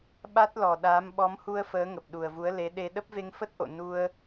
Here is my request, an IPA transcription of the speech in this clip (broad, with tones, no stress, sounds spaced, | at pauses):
ɓ a˦˥ t̚ l ɔ˨˩ ɗ aː˨˦ m ɓ ɔ˨˦ m h u˧ ə̯ f əː˨˦ ŋ ə˨˩ p̚ ɗ u˨˩ ə̯ v u˨˦ ə̯ l e˨˦ ɗ e˧ ɗ ə˦˥ p̚ v e˧ ŋ f ə˦˥ t̚ ʔ o̰˧˨ n u˧ ə̯